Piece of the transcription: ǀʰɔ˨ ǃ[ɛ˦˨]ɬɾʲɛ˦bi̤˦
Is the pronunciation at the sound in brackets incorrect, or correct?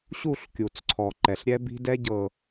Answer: incorrect